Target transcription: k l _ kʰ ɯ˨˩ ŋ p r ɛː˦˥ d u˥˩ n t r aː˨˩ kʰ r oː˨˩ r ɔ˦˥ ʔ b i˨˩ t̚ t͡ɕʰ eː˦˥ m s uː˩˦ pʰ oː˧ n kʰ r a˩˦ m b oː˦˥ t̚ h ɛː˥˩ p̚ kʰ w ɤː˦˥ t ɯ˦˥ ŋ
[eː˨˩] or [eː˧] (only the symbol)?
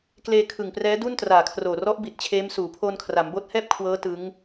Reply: eː˧